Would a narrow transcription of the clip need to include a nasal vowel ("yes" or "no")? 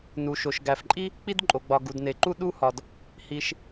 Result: no